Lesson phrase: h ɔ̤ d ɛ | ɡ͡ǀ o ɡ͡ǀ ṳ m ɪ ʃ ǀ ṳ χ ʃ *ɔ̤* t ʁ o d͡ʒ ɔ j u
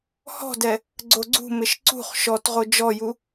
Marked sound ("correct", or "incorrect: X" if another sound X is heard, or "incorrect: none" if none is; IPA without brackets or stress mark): incorrect: ɔ